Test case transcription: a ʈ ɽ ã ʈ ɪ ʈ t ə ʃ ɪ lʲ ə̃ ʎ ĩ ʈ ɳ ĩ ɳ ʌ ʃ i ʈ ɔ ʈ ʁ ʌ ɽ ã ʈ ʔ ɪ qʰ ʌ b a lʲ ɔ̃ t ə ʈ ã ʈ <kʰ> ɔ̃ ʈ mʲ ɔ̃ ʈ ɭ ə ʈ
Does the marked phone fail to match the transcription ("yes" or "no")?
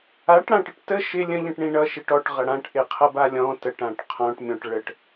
yes